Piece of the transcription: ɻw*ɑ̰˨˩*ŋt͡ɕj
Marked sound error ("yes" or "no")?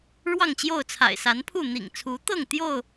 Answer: yes